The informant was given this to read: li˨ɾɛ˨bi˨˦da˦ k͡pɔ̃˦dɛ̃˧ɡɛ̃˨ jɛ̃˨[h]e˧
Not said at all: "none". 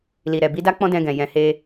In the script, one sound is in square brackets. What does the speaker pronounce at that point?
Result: h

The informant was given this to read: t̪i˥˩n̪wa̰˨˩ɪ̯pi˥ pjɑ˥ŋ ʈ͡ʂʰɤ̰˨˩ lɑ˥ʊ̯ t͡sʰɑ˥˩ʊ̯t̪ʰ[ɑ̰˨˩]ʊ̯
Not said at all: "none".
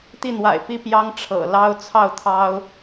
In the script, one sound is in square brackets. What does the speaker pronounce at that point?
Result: ɑ˥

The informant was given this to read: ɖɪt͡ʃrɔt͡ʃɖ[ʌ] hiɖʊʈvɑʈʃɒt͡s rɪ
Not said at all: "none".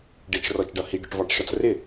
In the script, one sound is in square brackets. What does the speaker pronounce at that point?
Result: ʌ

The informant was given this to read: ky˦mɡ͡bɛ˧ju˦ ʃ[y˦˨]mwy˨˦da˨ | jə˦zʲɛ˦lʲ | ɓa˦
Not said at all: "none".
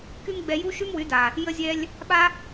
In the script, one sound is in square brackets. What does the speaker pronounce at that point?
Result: y˦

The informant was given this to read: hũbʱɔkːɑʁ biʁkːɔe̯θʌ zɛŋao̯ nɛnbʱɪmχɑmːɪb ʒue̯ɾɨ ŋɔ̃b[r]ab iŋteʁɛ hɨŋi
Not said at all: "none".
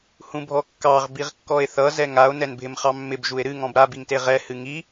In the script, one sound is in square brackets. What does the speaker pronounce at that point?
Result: ɾ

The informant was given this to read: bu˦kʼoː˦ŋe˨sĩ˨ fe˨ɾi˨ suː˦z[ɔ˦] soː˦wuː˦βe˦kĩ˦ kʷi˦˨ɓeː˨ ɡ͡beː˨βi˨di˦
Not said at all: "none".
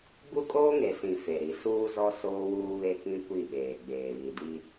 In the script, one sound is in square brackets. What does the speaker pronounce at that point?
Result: ɔ˦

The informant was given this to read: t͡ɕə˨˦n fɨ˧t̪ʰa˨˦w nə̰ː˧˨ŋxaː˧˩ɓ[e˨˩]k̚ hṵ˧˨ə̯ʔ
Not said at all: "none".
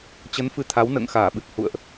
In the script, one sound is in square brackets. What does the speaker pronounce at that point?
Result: ɨ˨˩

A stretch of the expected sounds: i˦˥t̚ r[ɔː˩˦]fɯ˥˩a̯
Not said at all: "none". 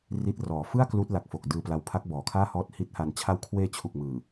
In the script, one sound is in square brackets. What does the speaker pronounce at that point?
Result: ɔː˩˦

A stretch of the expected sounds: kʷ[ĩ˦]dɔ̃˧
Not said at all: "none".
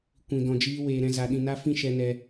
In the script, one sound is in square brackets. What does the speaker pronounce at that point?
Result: ĩ˧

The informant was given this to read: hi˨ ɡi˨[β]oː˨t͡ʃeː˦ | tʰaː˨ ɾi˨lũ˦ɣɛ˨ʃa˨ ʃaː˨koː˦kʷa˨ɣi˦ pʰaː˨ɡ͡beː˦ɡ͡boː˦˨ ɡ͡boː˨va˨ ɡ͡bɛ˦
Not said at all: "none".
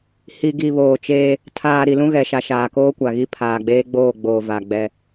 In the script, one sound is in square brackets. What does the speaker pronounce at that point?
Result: β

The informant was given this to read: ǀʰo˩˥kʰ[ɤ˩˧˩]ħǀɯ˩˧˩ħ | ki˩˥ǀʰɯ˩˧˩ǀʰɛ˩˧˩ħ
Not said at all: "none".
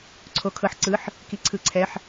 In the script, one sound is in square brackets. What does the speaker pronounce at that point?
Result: ɤ˩˧˩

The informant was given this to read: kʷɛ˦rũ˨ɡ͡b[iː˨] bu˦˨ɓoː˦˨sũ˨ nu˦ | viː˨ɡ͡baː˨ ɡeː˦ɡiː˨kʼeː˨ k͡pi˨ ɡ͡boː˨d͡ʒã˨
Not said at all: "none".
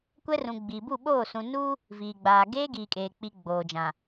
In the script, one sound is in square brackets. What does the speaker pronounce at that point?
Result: iː˨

